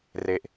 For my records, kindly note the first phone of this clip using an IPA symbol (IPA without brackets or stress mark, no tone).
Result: r